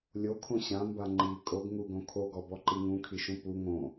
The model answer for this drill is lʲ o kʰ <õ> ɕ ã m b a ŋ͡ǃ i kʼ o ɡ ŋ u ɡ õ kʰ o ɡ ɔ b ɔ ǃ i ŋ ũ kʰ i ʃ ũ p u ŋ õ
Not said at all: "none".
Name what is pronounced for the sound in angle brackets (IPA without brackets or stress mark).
õ